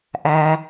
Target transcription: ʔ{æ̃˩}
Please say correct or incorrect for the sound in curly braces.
incorrect: æ˩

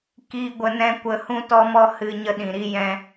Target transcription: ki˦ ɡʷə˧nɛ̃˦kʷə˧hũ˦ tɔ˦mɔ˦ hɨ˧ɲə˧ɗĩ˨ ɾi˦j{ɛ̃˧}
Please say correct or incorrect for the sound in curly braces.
incorrect: ɛ̃˦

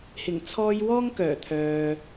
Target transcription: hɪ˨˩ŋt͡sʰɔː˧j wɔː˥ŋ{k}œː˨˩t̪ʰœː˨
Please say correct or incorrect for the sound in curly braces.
correct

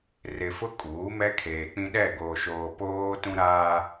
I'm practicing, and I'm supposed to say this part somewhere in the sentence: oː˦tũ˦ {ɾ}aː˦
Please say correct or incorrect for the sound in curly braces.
correct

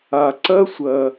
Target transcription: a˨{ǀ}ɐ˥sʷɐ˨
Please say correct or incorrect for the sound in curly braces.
correct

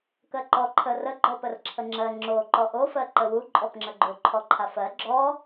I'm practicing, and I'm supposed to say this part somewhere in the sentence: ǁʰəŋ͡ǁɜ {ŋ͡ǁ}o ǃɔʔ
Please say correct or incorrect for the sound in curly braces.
correct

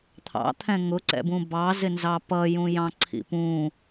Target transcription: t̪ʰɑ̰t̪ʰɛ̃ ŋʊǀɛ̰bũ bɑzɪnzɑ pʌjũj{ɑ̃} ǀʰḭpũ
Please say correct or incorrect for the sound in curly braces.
correct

